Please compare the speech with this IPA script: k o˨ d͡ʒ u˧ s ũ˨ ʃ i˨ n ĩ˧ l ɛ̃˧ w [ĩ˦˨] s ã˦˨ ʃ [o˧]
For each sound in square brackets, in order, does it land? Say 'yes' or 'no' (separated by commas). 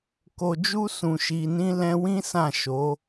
no, no